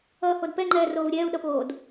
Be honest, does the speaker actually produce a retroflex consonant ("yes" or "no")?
no